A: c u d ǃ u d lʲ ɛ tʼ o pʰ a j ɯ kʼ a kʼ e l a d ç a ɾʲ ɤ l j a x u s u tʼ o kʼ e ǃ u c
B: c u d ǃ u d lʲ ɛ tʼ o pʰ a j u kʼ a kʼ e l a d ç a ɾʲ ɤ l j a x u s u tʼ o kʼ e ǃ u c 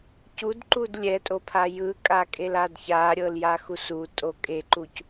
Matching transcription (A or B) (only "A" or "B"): A